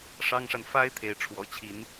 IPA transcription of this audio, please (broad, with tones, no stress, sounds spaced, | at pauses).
ʂ ɑ˥ ŋ ʂ a˨ n f a˥ ɪ̯ t̪ʰ e˧˥ ɪ̯ ʈ͡ʂʰ w ɔ̰˨˩ t͡ɕʰ i˧˥ n